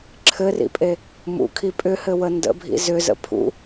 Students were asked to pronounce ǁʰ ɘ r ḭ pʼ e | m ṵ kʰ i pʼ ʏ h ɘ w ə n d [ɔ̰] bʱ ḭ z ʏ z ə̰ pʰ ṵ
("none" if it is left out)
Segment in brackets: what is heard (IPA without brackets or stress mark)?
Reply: ə̰